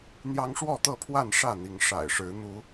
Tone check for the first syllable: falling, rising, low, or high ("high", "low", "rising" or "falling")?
high